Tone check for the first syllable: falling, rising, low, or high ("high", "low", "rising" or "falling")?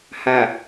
low